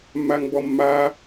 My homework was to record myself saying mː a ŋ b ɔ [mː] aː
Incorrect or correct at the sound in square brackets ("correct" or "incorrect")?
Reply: correct